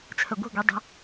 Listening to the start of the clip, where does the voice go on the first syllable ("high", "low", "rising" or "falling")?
low